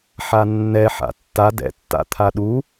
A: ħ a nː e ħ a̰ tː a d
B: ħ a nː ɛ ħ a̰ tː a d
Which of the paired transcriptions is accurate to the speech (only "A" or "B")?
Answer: B